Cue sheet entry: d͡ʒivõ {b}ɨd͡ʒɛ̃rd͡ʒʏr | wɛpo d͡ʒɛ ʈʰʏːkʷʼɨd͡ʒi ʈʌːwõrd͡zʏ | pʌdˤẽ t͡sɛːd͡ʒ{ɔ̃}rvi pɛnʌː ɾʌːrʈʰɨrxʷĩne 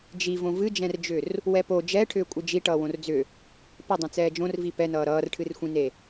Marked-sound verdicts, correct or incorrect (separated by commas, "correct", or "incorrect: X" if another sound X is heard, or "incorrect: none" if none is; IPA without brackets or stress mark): incorrect: v, incorrect: õ